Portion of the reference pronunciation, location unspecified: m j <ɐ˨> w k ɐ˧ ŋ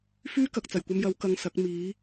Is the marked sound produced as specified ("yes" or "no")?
no